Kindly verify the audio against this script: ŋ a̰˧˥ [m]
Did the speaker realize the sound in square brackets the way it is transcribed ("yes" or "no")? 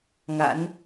no